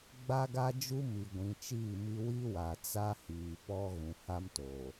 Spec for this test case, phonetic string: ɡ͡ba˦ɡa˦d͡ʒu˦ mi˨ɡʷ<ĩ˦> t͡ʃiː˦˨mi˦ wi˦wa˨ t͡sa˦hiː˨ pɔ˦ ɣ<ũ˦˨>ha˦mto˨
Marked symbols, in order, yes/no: no, no

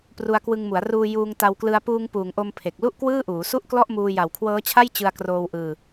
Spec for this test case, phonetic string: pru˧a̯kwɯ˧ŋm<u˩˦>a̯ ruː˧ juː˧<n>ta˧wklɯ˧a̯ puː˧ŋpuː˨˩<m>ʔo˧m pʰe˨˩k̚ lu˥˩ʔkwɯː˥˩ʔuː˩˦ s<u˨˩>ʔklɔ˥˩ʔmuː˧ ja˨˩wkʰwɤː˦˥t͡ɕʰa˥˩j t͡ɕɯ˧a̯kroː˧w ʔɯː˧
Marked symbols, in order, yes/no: yes, no, no, no

